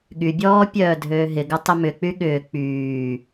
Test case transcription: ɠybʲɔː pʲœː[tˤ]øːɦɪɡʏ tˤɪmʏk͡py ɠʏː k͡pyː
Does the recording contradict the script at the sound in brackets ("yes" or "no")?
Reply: yes